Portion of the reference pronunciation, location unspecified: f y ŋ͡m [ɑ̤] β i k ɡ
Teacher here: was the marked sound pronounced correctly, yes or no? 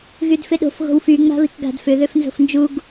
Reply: no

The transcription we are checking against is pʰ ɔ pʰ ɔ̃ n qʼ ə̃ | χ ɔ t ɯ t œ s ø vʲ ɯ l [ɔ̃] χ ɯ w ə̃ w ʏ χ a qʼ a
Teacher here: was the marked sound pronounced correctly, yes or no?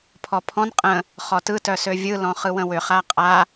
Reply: yes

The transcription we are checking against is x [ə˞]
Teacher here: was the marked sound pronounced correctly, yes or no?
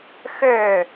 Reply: yes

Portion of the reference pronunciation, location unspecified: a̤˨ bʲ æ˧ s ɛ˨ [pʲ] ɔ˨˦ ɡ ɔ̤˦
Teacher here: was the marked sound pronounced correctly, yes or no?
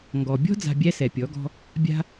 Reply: yes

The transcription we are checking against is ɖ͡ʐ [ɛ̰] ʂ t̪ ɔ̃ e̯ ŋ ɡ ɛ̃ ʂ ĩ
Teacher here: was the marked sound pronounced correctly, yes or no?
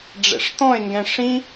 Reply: yes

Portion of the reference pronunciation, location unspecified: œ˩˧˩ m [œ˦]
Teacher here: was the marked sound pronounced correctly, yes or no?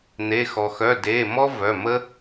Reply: no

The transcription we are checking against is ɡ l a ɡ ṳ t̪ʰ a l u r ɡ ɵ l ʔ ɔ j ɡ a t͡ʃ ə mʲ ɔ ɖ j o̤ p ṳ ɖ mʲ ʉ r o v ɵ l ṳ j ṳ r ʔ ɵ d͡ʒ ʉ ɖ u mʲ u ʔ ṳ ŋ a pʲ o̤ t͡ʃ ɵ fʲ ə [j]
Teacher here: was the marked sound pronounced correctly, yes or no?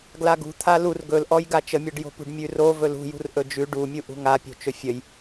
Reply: yes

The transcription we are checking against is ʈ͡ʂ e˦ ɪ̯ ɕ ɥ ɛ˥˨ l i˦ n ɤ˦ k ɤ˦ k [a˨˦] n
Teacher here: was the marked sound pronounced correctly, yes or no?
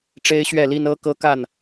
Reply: no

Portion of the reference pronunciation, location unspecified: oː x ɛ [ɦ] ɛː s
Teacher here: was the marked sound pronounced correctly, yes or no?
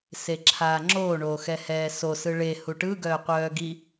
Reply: no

